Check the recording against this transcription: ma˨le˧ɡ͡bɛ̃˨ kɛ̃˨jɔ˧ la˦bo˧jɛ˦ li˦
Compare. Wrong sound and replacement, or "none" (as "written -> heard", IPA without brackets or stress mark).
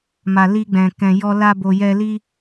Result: e˧ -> i˧